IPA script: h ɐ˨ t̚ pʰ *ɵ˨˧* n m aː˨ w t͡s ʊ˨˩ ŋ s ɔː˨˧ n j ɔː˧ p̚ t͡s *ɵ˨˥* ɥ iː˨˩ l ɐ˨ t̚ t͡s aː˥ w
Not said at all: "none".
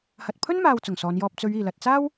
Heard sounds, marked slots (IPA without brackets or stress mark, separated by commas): ɵ˥, ɵ˨˧